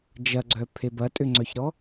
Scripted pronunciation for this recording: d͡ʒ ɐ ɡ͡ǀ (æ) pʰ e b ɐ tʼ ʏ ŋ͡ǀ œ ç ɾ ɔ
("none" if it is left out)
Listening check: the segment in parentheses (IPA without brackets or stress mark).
œ